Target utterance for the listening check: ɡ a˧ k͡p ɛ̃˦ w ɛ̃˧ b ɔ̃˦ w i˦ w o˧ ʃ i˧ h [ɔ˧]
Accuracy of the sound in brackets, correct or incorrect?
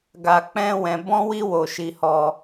correct